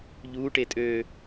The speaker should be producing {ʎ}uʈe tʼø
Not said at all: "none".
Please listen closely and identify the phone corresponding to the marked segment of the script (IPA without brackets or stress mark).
ʎ